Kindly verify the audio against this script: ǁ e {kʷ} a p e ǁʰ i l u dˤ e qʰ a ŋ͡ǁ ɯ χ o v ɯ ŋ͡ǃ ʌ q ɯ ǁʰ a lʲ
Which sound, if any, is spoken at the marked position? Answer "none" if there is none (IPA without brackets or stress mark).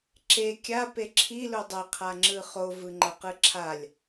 kʲ